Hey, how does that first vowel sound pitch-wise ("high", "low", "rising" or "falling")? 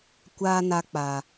high